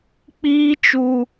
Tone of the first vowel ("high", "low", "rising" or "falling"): high